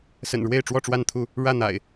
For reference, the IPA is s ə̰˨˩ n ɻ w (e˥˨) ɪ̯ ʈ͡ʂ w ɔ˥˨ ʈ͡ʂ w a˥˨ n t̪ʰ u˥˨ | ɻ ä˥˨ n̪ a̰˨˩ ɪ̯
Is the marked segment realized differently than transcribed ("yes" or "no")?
no